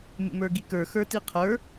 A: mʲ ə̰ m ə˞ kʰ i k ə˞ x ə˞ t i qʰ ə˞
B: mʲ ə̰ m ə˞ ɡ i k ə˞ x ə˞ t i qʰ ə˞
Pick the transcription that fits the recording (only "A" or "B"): B